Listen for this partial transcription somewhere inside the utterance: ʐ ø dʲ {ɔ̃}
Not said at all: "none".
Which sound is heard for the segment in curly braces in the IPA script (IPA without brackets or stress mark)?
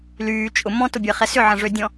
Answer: ɔ̃